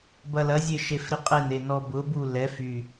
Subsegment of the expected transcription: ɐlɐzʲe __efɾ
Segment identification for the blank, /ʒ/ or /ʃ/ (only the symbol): ʃ